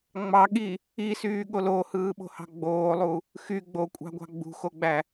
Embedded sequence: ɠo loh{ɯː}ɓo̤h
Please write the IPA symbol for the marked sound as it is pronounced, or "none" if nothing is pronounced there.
ɯː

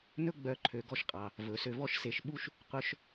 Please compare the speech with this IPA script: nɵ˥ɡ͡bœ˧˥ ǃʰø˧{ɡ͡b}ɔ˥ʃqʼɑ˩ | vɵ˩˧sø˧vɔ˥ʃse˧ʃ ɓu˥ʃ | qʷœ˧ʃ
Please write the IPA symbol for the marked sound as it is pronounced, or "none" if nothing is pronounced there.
ɡ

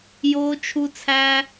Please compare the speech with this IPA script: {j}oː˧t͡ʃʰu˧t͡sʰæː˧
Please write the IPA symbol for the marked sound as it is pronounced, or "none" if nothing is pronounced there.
j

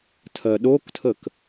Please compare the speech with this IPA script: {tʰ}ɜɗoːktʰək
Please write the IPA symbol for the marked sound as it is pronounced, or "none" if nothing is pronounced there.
tʰ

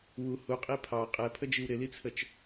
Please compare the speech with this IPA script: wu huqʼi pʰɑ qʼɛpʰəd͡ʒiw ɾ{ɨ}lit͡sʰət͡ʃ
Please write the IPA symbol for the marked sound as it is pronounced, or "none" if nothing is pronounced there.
ɪ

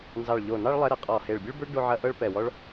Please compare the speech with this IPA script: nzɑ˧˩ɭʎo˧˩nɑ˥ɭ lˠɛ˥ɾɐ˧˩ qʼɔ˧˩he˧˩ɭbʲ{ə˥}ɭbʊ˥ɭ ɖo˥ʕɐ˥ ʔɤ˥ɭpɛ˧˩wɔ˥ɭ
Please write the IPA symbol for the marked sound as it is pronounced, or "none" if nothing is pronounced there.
ə˥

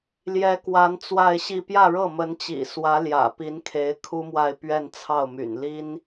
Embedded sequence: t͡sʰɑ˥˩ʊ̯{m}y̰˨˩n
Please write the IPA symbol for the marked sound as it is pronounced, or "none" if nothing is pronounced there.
m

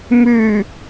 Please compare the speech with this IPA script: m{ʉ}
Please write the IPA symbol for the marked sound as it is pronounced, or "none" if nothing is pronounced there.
ʉ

